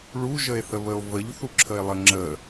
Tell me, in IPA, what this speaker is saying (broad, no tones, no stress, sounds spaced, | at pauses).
ɭ u ʒ ə e̯ θ ə β ə o̯ v ə ʎ θ u ǁʰ ə e̯ lˠ ə ŋ͡ǁ ə